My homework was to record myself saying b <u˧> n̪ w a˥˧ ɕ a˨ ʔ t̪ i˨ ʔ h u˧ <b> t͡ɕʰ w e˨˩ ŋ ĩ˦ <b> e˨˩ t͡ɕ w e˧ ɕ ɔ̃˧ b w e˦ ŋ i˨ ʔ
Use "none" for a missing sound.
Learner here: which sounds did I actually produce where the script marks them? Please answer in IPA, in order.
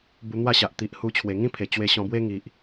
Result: u˧, none, pʰ

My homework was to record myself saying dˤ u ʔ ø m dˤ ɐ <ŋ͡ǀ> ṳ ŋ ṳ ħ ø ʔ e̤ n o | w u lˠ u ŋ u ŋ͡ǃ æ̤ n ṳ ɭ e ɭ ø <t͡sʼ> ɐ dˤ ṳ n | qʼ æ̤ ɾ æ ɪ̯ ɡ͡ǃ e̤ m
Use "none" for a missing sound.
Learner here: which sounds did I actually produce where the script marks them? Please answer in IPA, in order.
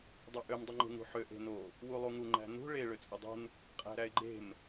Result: ŋ͡ǃ, t͡sʼ

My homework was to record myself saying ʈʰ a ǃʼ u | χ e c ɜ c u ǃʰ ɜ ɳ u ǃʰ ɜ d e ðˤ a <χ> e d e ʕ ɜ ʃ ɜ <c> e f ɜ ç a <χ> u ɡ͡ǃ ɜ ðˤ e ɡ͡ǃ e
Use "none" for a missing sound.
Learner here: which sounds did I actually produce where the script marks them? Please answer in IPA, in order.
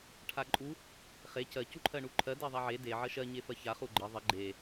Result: ʕ, ɲ, χ

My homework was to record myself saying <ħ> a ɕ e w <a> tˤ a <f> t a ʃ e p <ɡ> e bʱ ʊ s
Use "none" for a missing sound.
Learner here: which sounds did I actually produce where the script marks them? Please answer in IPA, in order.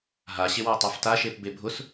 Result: ɦ, a, f, b

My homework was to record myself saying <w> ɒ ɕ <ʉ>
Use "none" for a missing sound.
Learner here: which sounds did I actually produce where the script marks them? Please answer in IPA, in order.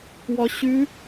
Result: w, ʉ

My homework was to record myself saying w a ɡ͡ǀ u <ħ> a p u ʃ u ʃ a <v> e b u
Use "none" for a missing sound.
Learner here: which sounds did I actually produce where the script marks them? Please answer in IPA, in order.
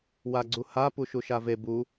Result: h, v

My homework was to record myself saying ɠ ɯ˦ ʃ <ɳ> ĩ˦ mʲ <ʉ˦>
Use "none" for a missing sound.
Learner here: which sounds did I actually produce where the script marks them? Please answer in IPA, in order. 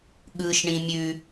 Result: ɳ, ʉ˦

